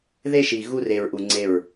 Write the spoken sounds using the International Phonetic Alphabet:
ðe˦ʃi˨ ɣu˦re˨ɹʔu˨ ŋ͡ǀe˦˨ɹ

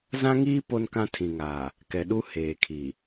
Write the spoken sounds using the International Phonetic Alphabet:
zã˦ŋiː˦ po˦nkã˦tʰĩ˨ŋaː˨ | kɛ˨ɗu˦ heː˨kʰi˨

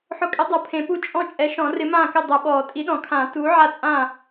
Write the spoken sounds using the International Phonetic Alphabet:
ħʊ˨˥kʼɪ˨˥ dˤo˨˩˦pʰẽ˨˩˦pu˥˩ t͡ʃʼɔ̃˥˩t͡ʃʼɛ˨˥ʃɔ̃˨˩˦ rɪ˨˥mãː˥˩kɪ˥˩ dˤʊ˨˩˦ɓɔː˨˩˦ tʼi˨˥ɗɔ̃˨˩˦kʰãː˨˩˦ tuː˨˥ ʕa˥˩t͡sʼã˥˩

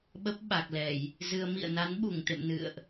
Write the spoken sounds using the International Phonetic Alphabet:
ɓə˦˥p̚ɓa˨˩k̚lɛ˧˩˨j | zɨ˧ə̯ mḭ˧˨ə̯na˨˦n ɓu˧˩ŋt̪ḛ˧˨m nɨ̰˧˨ə̯ʔ

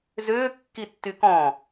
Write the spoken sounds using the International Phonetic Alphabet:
zʏː kːitːykɔ̃

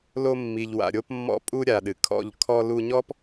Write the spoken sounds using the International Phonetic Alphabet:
lo˧mːi˨ʎ wa̰˨ɾʲo˧p mːɔ̰˧pʼu˧ ɾʲa˨ɗɨ˨kʰɔ̰˦˨ʎ kʰɔ˧lu˧ɲɔ˦p

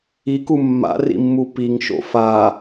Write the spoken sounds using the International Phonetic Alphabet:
iku mːa̰rḭmːu piŋʃo̰ fa

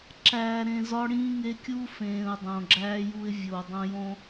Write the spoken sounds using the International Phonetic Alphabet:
ǁæː˨ ɾẽ˨zɒ˦ɽĩː˦ŋe˦ kʲu˦fẽː˨ʊ̯ dˤõ˨ɡ͡ǁæː˦ju˦ɪ̯ vʲoː˨dˤõ˦ jõ˦

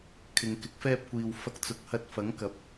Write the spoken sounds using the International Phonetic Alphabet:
kʰɪ˨ŋ kɪ˨˥k̚fɛː˧p̚kʷiː˨w fɐ˧k̚ t͡sʊ˨˥k̚hɐ˧t̚ fɐ˨˥ŋ kɐ˨˥p̚

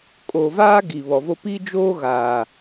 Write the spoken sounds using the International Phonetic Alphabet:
kʼo˨vaː˦ ɡi˨βɔ˨vo˦ pi˦d͡ʒoː˦ ɣaː˨

